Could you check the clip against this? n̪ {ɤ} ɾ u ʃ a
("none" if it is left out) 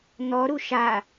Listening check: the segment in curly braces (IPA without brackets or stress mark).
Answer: ɔ